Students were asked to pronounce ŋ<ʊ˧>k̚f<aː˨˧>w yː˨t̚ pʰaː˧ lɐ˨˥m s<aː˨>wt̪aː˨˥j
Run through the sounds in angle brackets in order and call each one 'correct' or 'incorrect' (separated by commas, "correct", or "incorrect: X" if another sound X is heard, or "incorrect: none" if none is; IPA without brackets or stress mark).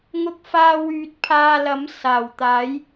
correct, incorrect: aː˧, incorrect: aː˨˩